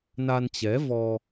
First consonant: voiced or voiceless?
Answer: voiced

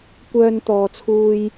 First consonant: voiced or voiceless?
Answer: voiceless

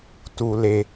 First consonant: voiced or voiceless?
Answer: voiceless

